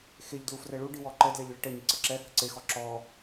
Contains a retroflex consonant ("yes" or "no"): yes